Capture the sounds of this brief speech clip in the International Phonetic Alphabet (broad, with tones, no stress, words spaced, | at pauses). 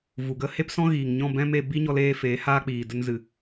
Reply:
vu˨ɡə˦ he˦psɔ̃˦ɣiː˨ŋɲɔ̃˦˨ bɛ̃˦m e˧ bi˦ɲɔ˧leː˧ feː˨˦ haː˦k͡piː˨də˦n zɨ˧